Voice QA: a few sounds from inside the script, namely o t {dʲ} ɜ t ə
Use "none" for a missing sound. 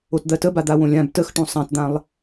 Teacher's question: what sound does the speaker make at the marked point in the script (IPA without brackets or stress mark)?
d̪